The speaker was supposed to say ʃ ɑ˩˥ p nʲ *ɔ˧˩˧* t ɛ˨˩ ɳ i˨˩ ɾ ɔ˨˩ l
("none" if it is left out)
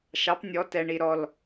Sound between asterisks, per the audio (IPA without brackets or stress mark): ɔ˩˥